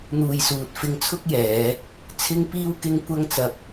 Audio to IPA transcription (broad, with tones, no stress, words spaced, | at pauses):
n̪uː˨jsuː˨t̚fɪ˧ŋ t͡sʰʊ˥k̚jɛː˨˧ | t͡sʰɪ˥ŋpiː˥wkɪ˥ŋ kʷɐ˥ŋt͡sɐ˧p̚